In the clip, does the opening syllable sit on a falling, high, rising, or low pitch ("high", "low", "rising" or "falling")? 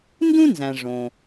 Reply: high